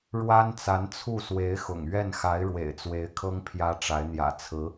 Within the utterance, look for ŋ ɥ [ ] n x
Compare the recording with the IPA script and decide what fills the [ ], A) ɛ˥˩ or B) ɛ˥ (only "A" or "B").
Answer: A